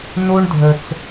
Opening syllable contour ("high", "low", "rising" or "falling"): high